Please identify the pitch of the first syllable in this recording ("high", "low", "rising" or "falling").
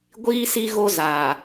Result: high